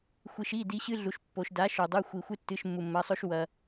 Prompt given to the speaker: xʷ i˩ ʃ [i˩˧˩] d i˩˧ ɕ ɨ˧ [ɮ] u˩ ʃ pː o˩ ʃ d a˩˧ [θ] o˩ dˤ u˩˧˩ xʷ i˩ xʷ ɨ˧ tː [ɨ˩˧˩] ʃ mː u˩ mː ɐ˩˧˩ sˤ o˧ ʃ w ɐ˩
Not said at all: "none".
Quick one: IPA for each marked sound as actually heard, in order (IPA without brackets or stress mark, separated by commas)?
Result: i˩˧˩, ɮ, ʃ, ɨ˩˧˩